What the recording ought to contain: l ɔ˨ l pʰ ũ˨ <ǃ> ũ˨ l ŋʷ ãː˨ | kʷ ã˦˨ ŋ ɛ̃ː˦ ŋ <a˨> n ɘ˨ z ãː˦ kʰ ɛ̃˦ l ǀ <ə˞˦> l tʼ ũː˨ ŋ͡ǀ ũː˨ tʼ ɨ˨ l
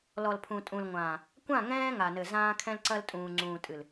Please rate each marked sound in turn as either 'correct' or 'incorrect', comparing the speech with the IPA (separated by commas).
incorrect, correct, incorrect